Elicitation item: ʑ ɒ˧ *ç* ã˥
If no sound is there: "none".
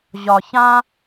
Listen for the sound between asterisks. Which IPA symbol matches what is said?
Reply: ç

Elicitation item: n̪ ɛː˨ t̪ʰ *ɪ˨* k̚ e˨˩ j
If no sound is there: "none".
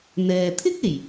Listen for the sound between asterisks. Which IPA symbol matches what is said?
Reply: ɪ˥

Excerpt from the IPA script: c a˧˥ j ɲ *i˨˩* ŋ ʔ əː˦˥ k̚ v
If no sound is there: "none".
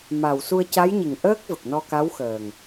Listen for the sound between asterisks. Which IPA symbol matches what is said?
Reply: i˨˩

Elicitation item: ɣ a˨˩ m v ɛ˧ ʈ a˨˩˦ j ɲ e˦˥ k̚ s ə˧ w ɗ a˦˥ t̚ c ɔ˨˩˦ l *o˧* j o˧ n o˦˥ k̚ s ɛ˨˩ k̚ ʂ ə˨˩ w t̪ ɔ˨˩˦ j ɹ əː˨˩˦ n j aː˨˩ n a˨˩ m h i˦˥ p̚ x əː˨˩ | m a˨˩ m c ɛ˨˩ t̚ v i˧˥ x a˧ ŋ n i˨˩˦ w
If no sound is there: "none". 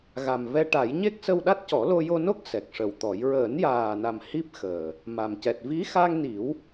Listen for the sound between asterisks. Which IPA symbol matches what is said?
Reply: o˧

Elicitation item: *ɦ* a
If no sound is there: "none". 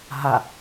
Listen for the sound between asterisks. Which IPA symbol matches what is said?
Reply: ɦ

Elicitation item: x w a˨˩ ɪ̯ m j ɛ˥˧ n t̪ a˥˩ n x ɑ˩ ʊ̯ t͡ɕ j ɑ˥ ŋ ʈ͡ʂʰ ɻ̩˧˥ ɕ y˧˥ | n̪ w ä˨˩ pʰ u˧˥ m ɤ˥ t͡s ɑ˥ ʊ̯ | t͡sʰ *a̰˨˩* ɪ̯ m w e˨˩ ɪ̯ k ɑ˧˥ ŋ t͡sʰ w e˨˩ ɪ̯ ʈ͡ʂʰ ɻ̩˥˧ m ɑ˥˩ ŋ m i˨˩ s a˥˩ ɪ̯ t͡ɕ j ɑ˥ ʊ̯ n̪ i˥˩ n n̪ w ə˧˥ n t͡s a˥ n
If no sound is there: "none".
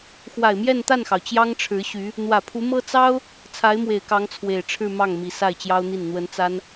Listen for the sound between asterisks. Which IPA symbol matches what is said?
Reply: a˧˥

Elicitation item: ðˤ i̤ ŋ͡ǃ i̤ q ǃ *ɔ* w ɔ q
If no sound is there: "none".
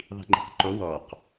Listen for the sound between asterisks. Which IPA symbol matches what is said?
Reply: o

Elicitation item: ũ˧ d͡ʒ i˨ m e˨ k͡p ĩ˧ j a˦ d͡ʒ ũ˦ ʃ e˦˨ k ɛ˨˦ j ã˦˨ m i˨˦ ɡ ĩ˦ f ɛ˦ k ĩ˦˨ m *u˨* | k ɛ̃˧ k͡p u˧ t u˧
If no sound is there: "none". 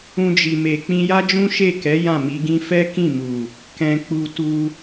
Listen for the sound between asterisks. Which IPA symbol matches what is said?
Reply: u˨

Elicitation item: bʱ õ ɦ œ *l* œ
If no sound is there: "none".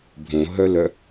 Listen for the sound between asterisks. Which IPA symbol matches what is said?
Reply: l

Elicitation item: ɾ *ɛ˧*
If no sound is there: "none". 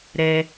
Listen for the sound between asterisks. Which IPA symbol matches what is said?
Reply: ɛ˧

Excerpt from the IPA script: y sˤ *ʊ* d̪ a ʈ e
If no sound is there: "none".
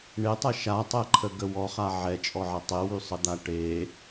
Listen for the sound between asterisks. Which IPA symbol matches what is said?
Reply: ə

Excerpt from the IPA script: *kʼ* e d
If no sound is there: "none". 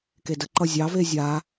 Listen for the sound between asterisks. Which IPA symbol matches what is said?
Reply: k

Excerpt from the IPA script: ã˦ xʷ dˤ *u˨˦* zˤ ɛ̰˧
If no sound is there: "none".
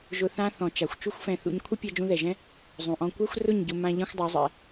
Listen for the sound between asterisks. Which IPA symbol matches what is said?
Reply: u˨˦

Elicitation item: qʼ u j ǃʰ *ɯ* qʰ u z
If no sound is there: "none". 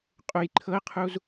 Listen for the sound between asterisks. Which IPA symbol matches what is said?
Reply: ɤ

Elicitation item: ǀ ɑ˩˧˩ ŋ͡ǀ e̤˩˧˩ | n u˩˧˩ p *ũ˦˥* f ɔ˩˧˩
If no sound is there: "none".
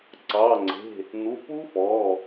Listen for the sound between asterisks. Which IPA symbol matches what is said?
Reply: u˦˥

